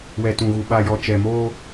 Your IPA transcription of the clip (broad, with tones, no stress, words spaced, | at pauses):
wɛ˨tũ˨ɣu˨ ɓa˨jɔ˨ t͡ʃɛ˨moː˦